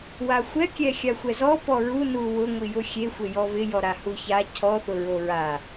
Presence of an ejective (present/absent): absent